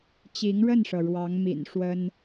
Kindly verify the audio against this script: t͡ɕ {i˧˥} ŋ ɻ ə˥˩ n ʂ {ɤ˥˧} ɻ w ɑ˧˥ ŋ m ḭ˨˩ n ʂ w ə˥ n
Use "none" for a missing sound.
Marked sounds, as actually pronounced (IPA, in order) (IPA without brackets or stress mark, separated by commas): i˧˥, ɤ˩